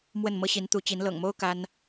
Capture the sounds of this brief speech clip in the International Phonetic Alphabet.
m w ə˥˩ n m ɤ˥ ɕ i˧˥ n t̪ u˧˥ t͡ɕ i˧˥ n l ɤ̰˨˩ ŋ m o˥ ʊ̯ k a˥ n

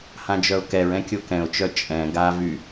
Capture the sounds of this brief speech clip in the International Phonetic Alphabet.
h ã d͡ʒ œ ʊ̯ k ɛ ɹ ɛ̃ kʲ o k ɛ̃ ʊ̯ t͡ʃ œ t͡ʃʼ ɛ̃ ɡ a v y

